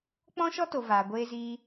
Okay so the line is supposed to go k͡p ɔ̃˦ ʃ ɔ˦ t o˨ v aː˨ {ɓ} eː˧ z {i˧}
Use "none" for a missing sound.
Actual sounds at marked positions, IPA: ɡʷ, iː˧

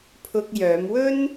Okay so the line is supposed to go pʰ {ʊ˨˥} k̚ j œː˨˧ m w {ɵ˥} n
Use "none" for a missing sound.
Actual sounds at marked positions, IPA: ʊ˧, ɵ˥

